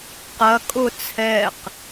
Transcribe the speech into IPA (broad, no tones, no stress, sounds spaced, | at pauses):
q ɐ kʼ ʊ t͡sʰ ɛ q